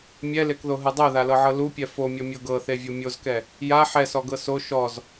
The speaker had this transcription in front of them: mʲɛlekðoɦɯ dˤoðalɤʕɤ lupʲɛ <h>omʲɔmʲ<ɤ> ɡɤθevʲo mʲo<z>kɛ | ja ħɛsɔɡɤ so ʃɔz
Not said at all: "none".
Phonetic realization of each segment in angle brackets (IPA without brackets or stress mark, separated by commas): f, ɤ, z